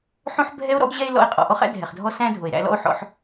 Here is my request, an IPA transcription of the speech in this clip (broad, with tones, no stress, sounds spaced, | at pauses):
ħ õ˦ ħ bʱ ɛ˦ o̯ ɾ ɔ̰˦ ɡ ʑ ɛ˦ e̯ l ɔ̰˧ e̯ qʼ ɔ̰˨ ʔ ɔ˦ χ æ̰˦ dʱ ɛ˨ χ dʱ ɔ˦ s æ̃˦ dʱ o˨ e̯ ɾ æ̰˧ l ɔ̰˦ o̯ ħ ɔ̰˧ ħ